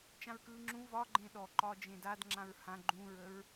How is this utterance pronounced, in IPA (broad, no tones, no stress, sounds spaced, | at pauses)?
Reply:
t͡ʃ ã ɹ k ɯː ŋ͡ǁ ũ v ɒ ɡ͡ǃ ẽ ɗ ɔ ǃ ɒː d͡ʒ ẽ d a d ŋ͡ǁ ã ɹ h ã ɡ͡ǃ ũ ɹ ə ɹ